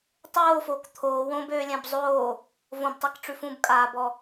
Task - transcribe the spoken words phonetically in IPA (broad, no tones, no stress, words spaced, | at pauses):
tˤoːfoːk t̪ʰoː wõbøːlʲɛ̃b zˤoː | võbtˤakʈ͡ʂʉ fũbkʼaːbɔ